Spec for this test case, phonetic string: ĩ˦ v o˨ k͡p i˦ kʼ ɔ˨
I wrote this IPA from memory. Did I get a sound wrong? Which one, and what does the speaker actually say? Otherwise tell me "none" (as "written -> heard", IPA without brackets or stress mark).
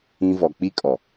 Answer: o˨ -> ɔ˨